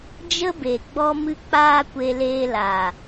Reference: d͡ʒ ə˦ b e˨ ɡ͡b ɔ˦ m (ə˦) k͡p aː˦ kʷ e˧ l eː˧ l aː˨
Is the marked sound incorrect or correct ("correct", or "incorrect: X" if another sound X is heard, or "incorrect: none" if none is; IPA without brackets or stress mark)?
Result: incorrect: ɨ˦